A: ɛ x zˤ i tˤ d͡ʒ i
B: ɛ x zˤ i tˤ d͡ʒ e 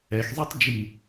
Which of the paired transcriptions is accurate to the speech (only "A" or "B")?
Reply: A